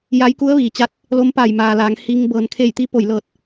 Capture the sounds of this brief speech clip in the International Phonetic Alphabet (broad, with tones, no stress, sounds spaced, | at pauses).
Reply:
j a˧˥ j k u˧˥ ə̯ ʋ iː˩ t͡ɕ a˧˥ t̚ | l o˧˥ m p a˧˩ j m aː˩ l aː˩˧ ŋ h i˧ ŋ b ɤː˩ n kʰ e˧˩ j t̪ i˧ p o˧˩ j l ɤː˧˩ t̚